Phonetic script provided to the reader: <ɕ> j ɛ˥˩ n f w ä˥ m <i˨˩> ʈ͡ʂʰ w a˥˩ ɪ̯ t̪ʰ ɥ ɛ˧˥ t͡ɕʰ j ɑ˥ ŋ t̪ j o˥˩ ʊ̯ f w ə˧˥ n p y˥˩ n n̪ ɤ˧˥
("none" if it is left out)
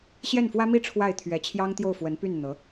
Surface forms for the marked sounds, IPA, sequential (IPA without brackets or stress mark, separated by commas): ɕ, i˥˧